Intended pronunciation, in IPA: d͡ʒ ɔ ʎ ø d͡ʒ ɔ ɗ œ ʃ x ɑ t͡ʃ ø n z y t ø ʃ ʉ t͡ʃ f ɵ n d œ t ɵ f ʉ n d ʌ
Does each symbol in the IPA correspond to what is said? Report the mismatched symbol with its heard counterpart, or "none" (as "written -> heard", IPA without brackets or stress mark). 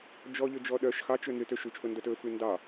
ʌ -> ɑ